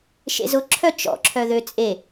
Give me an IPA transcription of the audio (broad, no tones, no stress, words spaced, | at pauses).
ʃḛzʊǁʰœ t͡ʃɔ̰ǁʰœ ðøt͡sʼe